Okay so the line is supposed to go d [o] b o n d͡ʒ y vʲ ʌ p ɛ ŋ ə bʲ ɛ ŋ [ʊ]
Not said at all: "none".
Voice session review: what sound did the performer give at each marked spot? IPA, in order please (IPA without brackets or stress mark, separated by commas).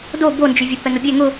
o, ʊ